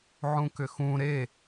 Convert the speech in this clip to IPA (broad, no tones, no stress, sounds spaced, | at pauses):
ʕ ũ k ʏ x ũ ɾ e